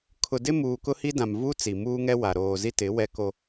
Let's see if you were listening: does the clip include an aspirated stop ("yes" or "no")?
yes